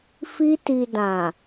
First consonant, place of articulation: labial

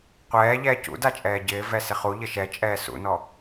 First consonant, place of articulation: uvular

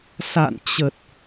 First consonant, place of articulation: alveolar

